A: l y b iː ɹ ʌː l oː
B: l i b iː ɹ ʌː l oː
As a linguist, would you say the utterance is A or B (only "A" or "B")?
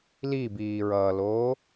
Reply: B